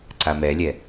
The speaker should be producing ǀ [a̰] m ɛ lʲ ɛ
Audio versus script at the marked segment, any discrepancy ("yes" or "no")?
yes